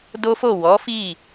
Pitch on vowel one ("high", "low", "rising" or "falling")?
high